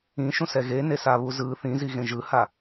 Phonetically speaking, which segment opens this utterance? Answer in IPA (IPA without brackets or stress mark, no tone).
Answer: ĩ